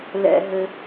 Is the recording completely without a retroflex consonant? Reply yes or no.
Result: yes